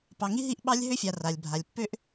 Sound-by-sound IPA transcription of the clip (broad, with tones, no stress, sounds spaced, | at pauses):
p ɑ˨ ŋ i˦ ɦ i˦˨ ʔ ɓ ɑ˦ lʲ ɦ ø˦ fʲ a˨ r a˨ lʲ bʱ a˨ lʲ pː ø˦ ʔ